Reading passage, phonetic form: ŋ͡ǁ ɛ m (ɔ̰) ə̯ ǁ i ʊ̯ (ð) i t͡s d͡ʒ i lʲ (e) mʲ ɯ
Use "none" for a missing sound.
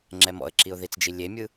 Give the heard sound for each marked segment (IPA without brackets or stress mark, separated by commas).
ɔ̰, ð, e